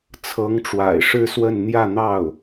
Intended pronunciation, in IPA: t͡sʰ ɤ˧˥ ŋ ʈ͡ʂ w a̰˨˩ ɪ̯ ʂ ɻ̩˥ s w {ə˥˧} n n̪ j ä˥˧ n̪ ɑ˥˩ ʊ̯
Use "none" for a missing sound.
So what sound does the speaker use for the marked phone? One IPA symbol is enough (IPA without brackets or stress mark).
ə˥˧